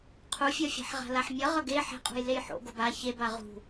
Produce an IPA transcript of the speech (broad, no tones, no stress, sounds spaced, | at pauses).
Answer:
qʰ u fʲ ʌ fʲ a̤ ħ ʁ a̤ l a ħ mʲ ʌ ʁ ʌ ɡ e ħ ɛ̤ qʼ ṳ j l e j ħ o̰ ɡ o b a ç e b a ʁ ṳ